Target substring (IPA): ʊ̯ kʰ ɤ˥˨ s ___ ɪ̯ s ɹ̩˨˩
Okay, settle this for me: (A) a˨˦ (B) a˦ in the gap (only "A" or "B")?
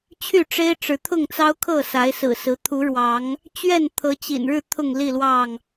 A